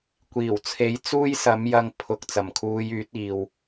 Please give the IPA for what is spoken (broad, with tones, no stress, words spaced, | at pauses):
kʷiː˨˩wt͡sʰe˨˥j t͡suː˥jsɐ˨˥mjɐ˧ŋ pʰʊ˨k̚ t͡sɐ˨˩mkʰuː˨˧jyː˨˥t̚iː˨w